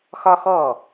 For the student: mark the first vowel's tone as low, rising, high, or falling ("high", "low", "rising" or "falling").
high